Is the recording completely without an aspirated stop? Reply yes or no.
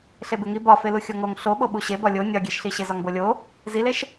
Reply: yes